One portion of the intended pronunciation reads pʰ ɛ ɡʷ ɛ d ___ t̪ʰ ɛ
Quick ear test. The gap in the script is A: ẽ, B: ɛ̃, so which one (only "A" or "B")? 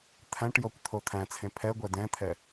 B